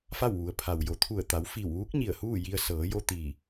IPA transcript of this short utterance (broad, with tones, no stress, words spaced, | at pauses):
fa˥˨wʋu˩˧ə̯pʰa˩wjo˩˧ t̪ʰu˧˩ə̯t̪a˩˧w fi˧˩wʋuː˧˥k̚ ɲi˧˩ə̯huː˥˨ji˧ə̯ sɤː˩˧jo˧ t̪iː˧˩